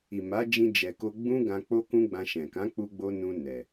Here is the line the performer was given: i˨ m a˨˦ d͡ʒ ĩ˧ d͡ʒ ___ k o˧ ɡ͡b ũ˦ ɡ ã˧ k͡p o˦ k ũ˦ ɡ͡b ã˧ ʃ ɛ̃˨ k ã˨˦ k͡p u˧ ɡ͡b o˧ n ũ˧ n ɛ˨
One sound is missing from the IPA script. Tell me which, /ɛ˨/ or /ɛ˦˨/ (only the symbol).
ɛ˨